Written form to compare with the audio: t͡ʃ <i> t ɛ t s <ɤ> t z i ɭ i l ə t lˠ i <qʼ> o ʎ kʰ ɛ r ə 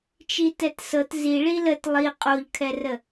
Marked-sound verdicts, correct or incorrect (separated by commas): correct, correct, correct